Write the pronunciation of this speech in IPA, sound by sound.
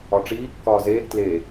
ɒ ʈ͡ʂ iː kː ɒː z eː ɡ t l e

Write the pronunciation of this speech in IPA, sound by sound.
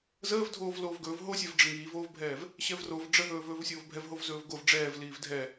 z əː v dʱ oː v l oː v ɡ ɵː v ɦ o sʲ ɛ v ɖ͡ʐ ə ŋ iː v oː v bʱ ɛː v | ɕ ɛ v r o v ɖ͡ʐ ə ɦ ɵː v ɵː v sʲ oː v bʱ ɛ v ɦ o v z ɵː v ɡ o v ɖ͡ʐ ɛː v l iː v dʱ ɛ

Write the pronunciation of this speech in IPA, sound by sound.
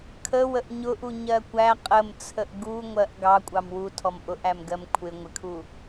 kʰ ə w ə ʔ ɲ ʊ ʔ u ɲ ɜ kʷ æ qʼ ə m t͡sʰ ə ʔ ɡ u ŋʷ ɜ ʔ ɡ ɑ kʷʼ ɑ m w u tʰ ɔ m ʔ ʊ ʔ æ m ɡ ɜ m kʷʰ ɪ ŋʷ ɪ kʰ u

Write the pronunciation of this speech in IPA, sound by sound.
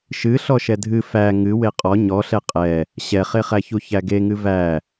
ʃ ɨ ɬ ɔ ʃ ɛ dʱ ɨ f æ ŋ ɨ w e qʼ ɔ ɲ ɔ ɬ ɛ qʼ ɛ | ɕ ɛ χ e χ æ ç u ç æ ɡ e ŋ ɨ v æ

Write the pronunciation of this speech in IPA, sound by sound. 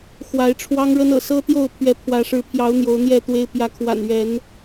x w a˨˦ ɪ̯ ʈ͡ʂʰ w ɑ˦ ŋ ɻ ə˦ n ɤ̰˨˩ s ɤ˦ t̪ j o˥˨ ʊ̯ pʰ ɥ ɛ˨˦ pʰ w ä˨˦ ʂ ɻ̩˨˦ pʰ j ɑ˨˦ ʊ̯ n̪ j o˨˦ ʊ̯ n̪ j ɛ˥˨ t̪ w e˦ ɪ̯ p j ä˨˦ kʰ w a̰˨˩ n ɥ ɛ˨˦ n

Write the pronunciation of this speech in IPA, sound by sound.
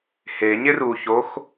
h e ɲ ɪ r u ç o x

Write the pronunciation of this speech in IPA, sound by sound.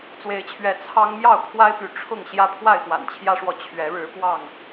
t͡s w e˨˦ ɪ̯ t͡ɕʰ ɥ ɛ˨˦ t͡sʰ ɑ˦ ŋ m j ɑ˥˨ ʊ̯ kʰ w a˦ ɪ̯ p y˨ ʈ͡ʂʰ ʊ˥˨ ŋ ɕ j ä˦ pʰ w a˥˨ ɪ̯ x w a̰˨˩ n t͡ɕʰ j ä˦ ʂ w ɔ˨ t͡ɕʰ ɥ ɛ˨˦ ɻ ɻ̩˨˦ p w ɑ˥˨ ŋ

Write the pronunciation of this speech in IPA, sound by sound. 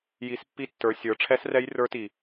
j i˨˦ s pː i˦˥ tː ə˞˨˦ sʲ ə˞˨˦ ʈ͡ʂʰ ɛ˦˥ s r ɛ˦˥ j r ə˞˦˥ t i˨˩

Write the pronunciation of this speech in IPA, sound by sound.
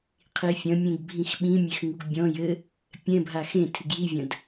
qʰ i fʲ ɐ̃ mʲ ẽ ɡ bʱ ĩ x ɓ ĩ mʲ e x ŋ u ɡ bʲ ɔ̃ j ɘ | pʲ ɛ̃ bʱ a x ẽ tʰ ɨ ɡ j i vʲ ɐ̃ d

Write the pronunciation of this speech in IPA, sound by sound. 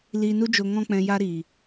l iː˨ n u˧ d͡ʒ o˨ ŋ ɔ̃˧ k͡p ɛ̃˨ j a˦ ɾ iː˨

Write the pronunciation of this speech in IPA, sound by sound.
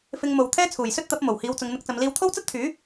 f ɪ˧ ŋ m o˨˧ w t̪ʰ ɛː˥ t͡sʰ uː˨˩ j s ɵ˥ t̚ t̪ ɐ˨˥ p̚ m o˨˩ w h iː˨˧ w t͡s ʊ˨˧ ŋ n̪ ɪ˧ k̚ t͡s ɐ˨˧ m l iː˧ w t̪ʰ o˥ w t͡s ɐ˥ t̚ t̪ʰ yː˨˥

